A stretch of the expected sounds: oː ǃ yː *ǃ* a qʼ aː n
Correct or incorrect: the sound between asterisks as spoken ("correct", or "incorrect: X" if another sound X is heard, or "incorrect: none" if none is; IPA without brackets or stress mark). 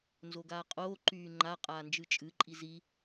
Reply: incorrect: ŋ͡ǃ